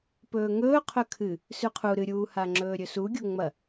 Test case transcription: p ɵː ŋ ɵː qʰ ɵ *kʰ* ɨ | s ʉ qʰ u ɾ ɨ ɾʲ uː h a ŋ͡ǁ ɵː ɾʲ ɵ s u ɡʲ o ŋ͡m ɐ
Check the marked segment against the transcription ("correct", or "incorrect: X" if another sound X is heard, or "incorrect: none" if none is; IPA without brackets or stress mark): correct